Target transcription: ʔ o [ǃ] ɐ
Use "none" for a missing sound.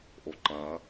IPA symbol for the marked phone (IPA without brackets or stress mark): ǃ